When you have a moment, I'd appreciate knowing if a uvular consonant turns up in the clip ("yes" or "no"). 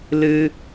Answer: no